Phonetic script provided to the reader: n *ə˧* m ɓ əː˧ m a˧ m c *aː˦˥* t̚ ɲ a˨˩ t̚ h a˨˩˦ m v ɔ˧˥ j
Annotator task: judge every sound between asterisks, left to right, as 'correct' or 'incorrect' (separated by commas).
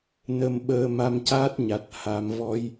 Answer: correct, correct